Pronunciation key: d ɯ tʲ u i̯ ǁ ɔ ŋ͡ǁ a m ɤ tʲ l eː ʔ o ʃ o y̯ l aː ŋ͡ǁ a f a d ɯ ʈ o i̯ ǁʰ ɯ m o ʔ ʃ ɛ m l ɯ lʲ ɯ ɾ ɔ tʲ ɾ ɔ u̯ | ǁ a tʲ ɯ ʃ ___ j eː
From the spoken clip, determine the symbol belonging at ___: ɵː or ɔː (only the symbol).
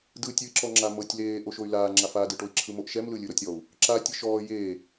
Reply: ɔː